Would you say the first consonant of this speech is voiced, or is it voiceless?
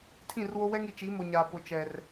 voiceless